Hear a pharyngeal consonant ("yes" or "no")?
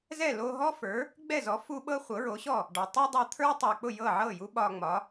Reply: yes